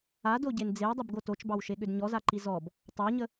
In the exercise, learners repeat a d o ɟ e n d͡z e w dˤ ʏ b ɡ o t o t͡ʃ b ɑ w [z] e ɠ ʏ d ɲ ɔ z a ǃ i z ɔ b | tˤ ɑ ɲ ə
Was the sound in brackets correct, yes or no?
no